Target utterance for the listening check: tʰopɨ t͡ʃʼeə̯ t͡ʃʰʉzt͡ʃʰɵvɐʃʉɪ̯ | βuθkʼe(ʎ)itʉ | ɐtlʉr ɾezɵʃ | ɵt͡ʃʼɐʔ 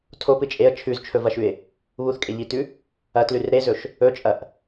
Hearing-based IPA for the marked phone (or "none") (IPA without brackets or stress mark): ʎ